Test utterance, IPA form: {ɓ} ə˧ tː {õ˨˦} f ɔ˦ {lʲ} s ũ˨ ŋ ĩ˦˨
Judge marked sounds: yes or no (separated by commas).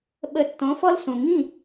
yes, yes, no